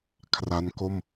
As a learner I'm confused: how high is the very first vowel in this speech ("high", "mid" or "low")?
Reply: low